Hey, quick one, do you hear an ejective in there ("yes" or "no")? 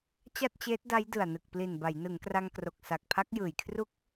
no